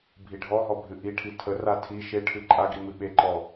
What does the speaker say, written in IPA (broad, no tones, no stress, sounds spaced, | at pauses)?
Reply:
bʱ i ɖʱ ɔ ɦ ɔ bʱ ɨ ʔ i ʈʰ i tʰ ə r a tʰ i ʃ e ʈʰ ɨ ǃʼ a ɡ i m ɨ ɓ e ǃ ɔ